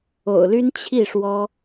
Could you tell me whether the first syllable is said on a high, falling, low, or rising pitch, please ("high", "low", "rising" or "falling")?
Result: low